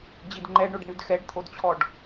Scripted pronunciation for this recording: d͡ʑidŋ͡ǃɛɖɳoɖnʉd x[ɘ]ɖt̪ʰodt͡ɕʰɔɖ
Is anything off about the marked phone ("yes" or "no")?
yes